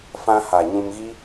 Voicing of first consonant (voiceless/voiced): voiceless